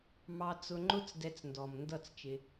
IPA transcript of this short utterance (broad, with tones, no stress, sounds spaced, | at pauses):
m ɑ˧ t͡s ʊ˧ ŋ͡ǃ ʊ˦ t͡s d ɛ˧ t͡s n d ɔ˨ m n d ʌ˦˨ t͡s t͡ʃ ɪ˧